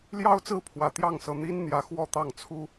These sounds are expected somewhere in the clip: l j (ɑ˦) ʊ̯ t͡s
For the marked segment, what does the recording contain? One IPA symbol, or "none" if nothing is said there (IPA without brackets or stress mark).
ɑ˦